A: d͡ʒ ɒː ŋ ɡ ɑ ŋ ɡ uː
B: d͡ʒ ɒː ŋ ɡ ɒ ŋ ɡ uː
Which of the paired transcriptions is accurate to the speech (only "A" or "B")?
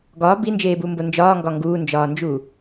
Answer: B